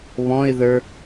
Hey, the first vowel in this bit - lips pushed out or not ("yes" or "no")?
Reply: yes